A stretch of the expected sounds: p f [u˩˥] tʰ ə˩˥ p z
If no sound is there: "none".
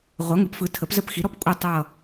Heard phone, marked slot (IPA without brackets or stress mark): ɯ˩˥